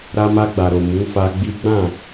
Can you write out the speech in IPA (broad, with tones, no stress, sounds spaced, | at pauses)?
ɾ a˧ m a˧ ɡ͡b a˨ ɾ o˨ m u˨˦ f a˧ ɡ͡b i˦ ɡ͡b ã˦˨